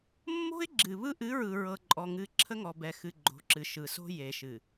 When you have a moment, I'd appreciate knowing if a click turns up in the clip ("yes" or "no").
yes